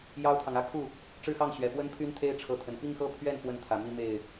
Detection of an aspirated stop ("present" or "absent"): present